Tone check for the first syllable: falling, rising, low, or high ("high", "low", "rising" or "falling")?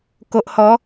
low